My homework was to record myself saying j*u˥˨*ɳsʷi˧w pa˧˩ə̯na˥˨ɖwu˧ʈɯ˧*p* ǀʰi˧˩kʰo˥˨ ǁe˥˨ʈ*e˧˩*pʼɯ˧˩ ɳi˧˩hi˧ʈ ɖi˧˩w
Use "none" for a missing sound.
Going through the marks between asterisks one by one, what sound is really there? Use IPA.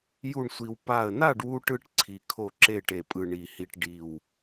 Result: u˥˨, ʈ, e˧˩

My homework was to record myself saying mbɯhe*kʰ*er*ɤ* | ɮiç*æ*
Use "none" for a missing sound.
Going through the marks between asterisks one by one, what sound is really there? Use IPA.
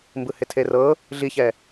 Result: tʰ, ɤ, ɛ

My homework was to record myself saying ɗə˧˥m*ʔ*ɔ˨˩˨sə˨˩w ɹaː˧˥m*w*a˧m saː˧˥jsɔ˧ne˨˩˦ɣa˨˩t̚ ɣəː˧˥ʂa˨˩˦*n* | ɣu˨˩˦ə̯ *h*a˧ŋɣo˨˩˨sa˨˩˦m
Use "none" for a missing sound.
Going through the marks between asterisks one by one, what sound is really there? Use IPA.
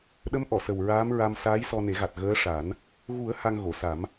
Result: ʔ, ɹ, n, h

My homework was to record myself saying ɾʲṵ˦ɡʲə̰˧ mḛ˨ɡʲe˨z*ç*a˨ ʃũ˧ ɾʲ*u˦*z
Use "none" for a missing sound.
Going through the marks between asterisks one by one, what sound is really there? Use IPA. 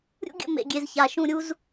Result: ç, u˦

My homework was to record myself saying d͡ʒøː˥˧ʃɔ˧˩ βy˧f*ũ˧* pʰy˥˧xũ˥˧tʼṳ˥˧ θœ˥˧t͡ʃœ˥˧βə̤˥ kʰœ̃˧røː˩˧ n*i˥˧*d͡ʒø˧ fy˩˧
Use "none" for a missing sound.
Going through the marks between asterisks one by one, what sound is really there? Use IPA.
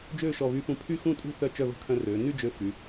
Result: ũ˧, y˥˧

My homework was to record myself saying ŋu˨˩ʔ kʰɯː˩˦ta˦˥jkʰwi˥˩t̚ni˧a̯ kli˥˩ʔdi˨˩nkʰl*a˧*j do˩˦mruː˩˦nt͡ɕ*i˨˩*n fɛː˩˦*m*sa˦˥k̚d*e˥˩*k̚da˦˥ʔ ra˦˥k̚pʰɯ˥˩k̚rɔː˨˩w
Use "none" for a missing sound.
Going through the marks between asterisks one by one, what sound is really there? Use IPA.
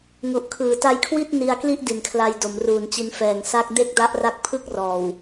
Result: a˧, i˧, ŋ, e˥˩

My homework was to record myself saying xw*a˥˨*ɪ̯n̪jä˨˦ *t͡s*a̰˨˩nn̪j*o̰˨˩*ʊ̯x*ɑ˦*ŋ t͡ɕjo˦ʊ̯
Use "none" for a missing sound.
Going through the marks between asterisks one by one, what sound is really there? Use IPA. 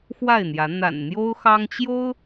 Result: a˥˨, n̪, o˦, ɑ˦

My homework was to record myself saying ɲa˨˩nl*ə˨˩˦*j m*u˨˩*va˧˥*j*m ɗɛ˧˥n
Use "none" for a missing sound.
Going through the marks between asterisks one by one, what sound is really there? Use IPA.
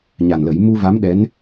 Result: ə˨˩˦, u˧, none

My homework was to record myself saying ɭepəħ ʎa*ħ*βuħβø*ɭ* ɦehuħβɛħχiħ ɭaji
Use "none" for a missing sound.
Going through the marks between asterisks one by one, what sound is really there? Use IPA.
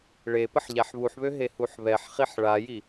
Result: ħ, none

